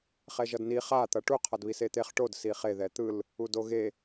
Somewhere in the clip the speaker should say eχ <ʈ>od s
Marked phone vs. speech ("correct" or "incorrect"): correct